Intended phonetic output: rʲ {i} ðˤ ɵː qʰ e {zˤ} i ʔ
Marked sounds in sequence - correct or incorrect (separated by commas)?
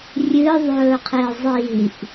incorrect, correct